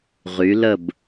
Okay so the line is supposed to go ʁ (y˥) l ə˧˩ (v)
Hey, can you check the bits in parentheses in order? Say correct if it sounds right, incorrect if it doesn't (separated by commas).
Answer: incorrect, incorrect